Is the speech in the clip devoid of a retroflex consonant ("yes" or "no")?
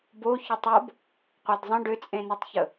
no